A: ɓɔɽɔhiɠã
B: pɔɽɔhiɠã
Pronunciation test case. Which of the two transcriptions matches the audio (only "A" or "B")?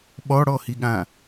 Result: A